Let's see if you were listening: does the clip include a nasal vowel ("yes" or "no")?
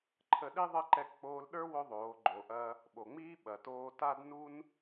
no